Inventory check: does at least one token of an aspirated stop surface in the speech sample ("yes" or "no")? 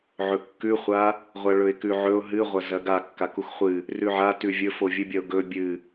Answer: no